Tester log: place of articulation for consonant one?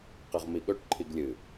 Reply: uvular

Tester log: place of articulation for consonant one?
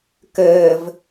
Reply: velar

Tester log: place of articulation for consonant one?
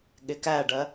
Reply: velar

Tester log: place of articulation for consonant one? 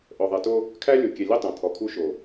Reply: glottal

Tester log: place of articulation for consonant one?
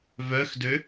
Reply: labial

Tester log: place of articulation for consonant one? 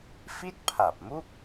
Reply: labial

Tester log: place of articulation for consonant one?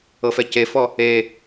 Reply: labial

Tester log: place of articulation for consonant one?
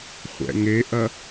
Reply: uvular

